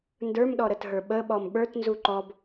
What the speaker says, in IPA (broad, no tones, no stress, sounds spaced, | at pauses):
n d ə˞ m ɗ ɔ ɾ ə t ɦ ə˞ ɓ ə ɓ ɔ m ɓ ə˞ t n z u ǃ ɔ b